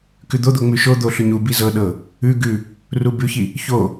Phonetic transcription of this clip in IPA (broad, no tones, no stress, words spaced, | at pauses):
kʉd̪od̪o ŋ͡mʉʃod̪o ɬʉɲubi zɤɗɤ | ʉ ɡʉ | rubʉçi | ço